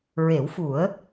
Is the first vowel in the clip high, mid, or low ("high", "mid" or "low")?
mid